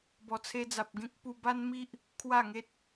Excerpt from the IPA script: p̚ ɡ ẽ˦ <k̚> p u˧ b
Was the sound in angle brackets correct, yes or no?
yes